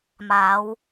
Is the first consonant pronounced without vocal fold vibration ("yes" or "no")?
no